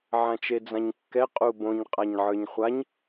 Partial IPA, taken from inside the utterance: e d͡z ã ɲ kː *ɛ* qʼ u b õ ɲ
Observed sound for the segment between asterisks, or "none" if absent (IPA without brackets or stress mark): ɛ